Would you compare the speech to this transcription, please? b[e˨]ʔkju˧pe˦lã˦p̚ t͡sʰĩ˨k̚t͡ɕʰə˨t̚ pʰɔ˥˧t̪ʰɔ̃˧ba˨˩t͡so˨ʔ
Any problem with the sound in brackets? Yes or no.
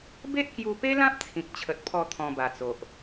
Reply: yes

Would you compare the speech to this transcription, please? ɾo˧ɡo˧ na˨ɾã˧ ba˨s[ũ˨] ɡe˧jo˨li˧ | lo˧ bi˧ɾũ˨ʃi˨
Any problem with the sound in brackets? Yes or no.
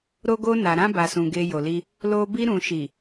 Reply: no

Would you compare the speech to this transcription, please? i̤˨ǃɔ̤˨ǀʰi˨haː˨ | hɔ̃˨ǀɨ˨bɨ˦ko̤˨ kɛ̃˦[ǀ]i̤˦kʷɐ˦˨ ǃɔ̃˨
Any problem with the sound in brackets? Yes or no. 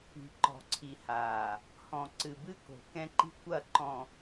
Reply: yes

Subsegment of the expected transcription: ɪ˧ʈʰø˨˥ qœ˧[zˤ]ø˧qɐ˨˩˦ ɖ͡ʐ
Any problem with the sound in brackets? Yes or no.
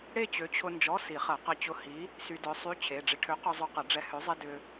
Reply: no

